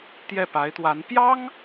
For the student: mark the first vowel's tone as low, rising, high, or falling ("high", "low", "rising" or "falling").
falling